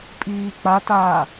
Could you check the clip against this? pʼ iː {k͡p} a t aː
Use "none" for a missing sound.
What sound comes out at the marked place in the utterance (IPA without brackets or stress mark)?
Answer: k͡p